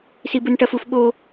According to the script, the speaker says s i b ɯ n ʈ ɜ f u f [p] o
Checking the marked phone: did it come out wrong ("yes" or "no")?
yes